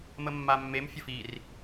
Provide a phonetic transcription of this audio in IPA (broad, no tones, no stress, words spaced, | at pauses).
məmːamːem fʲəfir